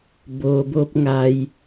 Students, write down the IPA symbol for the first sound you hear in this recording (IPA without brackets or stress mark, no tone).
b